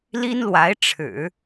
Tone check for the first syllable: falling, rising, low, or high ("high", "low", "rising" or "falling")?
high